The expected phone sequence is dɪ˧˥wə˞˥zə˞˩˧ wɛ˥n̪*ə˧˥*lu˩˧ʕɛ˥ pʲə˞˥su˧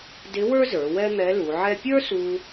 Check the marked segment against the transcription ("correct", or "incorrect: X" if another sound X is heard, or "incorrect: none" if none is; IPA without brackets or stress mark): incorrect: ɛ˧˥